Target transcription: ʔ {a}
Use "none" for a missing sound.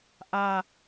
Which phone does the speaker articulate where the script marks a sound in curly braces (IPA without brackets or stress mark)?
a